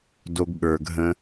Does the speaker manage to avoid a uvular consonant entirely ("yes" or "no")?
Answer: yes